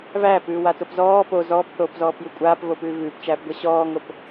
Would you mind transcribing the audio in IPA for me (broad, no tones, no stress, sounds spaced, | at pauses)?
v æː p ʉː w a t o p z ɔː p o z ɔː p θ oː p z ɔː p j ʉ kʷʼ aː p v o p ʉː v ʉː p t͡ʃ æː p ɡʷ æ ɕ ɔː ŋ o p